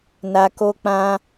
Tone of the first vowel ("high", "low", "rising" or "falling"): low